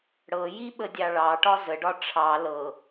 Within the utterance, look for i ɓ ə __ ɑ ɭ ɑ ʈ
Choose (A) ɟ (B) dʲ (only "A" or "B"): B